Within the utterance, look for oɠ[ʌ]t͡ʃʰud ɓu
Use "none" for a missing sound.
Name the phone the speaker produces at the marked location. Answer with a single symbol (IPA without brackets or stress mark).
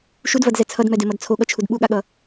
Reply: ʌ